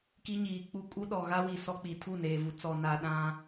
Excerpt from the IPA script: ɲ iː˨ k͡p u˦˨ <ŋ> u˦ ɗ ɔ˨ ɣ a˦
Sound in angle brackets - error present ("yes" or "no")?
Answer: yes